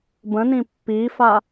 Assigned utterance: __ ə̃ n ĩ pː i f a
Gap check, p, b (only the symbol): b